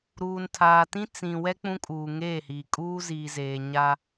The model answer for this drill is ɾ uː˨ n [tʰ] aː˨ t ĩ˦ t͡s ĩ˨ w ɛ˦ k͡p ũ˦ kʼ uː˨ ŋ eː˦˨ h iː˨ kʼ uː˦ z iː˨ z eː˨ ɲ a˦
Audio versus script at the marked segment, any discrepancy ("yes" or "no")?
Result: no